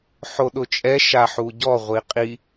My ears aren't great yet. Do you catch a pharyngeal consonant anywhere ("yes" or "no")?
yes